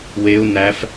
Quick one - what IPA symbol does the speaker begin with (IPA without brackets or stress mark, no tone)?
w